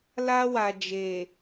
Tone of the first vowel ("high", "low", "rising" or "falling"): high